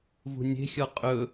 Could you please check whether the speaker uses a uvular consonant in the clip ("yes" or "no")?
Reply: yes